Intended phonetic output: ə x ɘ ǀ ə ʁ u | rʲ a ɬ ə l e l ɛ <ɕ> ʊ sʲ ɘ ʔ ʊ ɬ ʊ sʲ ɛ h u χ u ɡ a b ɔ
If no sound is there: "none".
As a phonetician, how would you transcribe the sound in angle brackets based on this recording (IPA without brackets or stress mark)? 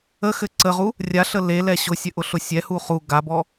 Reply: ɕ